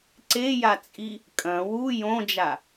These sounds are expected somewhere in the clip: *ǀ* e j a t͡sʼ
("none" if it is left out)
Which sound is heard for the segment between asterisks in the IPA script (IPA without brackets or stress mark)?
ǀ